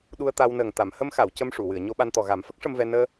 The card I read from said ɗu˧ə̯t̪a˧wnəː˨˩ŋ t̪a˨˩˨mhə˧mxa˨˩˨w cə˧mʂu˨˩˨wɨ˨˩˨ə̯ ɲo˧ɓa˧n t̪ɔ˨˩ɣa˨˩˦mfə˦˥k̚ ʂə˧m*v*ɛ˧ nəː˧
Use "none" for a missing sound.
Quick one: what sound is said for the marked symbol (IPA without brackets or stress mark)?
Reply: v